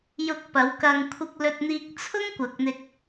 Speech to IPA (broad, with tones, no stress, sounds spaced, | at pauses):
j ʊ˧ k̚ p ɐ˨˧ w k ɐ˧ ŋ kʷʰ ɪ˧ k̚ l ɵ˧ t̚ n̪ iː˧ k̚ t͡sʰ ʊ˥ ŋ kʷ ɐ˨ k̚ n̪ ɪ˧ k̚